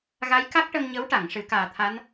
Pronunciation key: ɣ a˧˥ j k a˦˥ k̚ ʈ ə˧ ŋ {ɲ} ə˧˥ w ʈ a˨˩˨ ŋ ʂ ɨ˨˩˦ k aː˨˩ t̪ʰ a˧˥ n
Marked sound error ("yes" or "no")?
no